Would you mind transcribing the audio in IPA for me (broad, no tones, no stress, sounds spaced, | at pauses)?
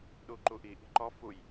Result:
ɗ u ǃ u ʔ i ʔ i̤ ǃ ɔ f u j